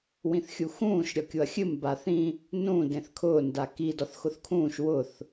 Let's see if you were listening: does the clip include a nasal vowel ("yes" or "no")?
yes